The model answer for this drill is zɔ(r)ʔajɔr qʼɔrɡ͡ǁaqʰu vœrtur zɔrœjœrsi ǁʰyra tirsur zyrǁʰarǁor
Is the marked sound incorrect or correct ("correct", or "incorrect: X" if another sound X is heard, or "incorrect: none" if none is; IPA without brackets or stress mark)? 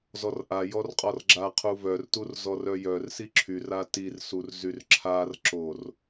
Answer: correct